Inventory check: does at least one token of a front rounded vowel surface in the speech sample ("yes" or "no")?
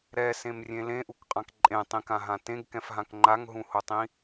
no